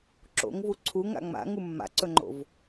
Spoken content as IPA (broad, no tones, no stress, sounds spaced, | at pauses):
ǁ o̰ ŋ v u ǀʰ u ŋ a̰ ŋ͡m a̰ ŋ u mː a̰ ǀ ɵ ŋ͡ǃ o̰ v